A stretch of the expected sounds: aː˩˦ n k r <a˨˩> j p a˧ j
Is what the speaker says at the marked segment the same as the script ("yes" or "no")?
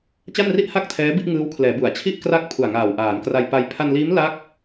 no